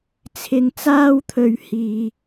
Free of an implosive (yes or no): yes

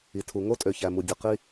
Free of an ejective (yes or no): no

